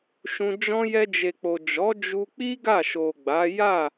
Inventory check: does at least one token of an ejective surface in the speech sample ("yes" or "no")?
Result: no